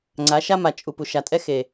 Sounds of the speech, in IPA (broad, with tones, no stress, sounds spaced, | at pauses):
ŋ͡ǀ a˨˦ ʃ a˦ m a˨ t͡ʃʼ u˨ p u˨ ʃ a˨ tʼ ɛ˦ x e˨